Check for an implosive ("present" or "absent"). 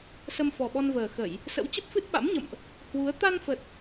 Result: present